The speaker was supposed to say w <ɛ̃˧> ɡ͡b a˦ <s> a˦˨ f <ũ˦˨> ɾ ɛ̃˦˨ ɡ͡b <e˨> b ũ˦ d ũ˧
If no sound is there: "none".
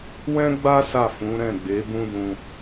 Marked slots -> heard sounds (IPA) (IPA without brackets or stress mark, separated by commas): ɛ̃˦, s, ũ˨˦, e˨˦